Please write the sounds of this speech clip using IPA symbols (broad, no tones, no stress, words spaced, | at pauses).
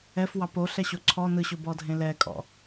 ɛfwɑp oɬɛɕo ǀʰɔ nɯɕʊbɔdʱẽ lɛkʼɔ̰